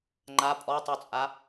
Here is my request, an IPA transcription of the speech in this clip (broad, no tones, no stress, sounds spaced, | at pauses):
ŋ͡ǃ a pʼ ɔ tˤ u t͡sʼ a